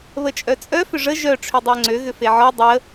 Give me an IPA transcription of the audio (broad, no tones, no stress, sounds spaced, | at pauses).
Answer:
β ə t͡ʃʼ œ t͡sʼ œ f ʏ ʐ ə ʒ œ ʈ͡ʂʰ ø dˤ ʊ ə̯ ŋ͡ǀ ø ɣ ʏ f e ʕ ɔ dˤ ə